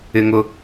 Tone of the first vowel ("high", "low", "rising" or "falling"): high